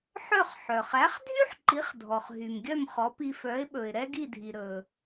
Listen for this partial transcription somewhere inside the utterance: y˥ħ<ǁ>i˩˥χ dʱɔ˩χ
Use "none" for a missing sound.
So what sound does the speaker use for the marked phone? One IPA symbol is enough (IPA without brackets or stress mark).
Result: ǃ